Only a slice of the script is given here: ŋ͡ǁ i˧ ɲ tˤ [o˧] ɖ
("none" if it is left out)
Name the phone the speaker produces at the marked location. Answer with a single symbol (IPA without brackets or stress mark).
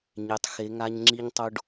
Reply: o˧